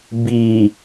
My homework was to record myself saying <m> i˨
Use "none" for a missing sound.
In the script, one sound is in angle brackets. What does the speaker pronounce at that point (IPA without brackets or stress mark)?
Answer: b